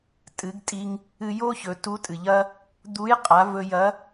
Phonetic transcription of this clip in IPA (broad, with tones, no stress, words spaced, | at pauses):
tʼɨ˩˧ɡtʼi˧ŋ | ɨ˧jo˥ çɵ˩˧tu˧˥tʼɨ˩ʎɐ˥ | d̪u˧˥jqʼa˩˧vɵ˧ jɐ˧˥